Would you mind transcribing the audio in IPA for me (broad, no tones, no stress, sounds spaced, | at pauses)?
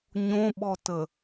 ɲ õ ɓ ɔ t ə